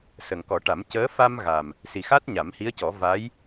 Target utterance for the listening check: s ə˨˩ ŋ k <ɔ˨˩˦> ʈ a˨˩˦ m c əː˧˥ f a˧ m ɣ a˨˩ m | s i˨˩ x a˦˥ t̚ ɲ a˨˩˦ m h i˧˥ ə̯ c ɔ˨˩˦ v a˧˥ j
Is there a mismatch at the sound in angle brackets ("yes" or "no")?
no